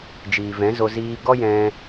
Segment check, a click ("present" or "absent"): absent